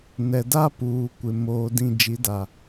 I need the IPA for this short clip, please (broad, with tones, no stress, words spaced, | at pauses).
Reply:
nɛ˨da˦ puː˨kʷɪ˨ moː˨dĩ˨ d͡ʒi˨˦da˨